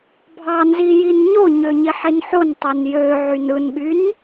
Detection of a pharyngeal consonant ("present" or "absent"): present